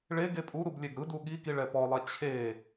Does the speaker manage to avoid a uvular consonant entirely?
yes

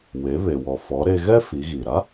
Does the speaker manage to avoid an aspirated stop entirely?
yes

